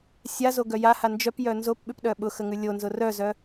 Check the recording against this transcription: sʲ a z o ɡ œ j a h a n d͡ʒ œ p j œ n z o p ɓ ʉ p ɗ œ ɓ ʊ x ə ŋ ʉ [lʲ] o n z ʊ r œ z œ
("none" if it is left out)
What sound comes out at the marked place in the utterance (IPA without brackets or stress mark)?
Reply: lʲ